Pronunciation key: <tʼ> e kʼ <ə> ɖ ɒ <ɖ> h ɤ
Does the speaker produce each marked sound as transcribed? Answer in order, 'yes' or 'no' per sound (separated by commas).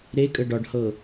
no, yes, yes